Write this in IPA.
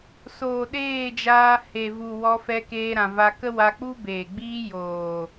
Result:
s oː˨ ɗ eː˦˨ d͡ʒ aː˧ h e˨ v u˨ w ɔ˧ f ɛ˧ k eː˧ ɾ ã˨ v a˧ k ə˦ w a˧ k͡p u˦ b eː˨ ɡ͡b iː˦ j oː˨

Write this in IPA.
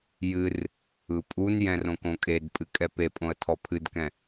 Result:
j ɨ r | ɯ pʼ u n j ɛ̃ r õ k õ kʼ e d pʼ ɨ kʼ ɛ p e pʼ õ ə̯ tʰ ɔ pʰ ɨ d k ɛ̃

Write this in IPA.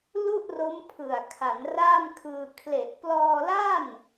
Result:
l u˥˩ ʔ r o˦˥ m pʰ ɯ˨˩ a̯ kʰ a˩˦ n r aː˥˩ m kʰ ɯː˧ kʰ l e˨˩ ʔ p l ɔː˧ l a˥˩ n

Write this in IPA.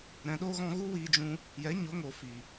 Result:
ɾ ɛ̃˨ ɗ o˧ ɣ ɔ̃˧ ɣ u˦ w iː˧ d͡ʒ ũ˧ | j ɛ˨˦ ɲ o˨˦ ŋ o˨ f i˨

